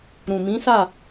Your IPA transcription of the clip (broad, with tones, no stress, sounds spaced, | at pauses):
ɾ ũ˨ m ĩ˨˦ s a˦˨